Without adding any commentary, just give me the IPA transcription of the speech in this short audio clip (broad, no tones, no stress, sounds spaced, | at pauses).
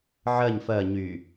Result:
ʕ ɜ ɲ f ɜ ɲ y